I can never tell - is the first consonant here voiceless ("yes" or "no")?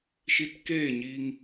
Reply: yes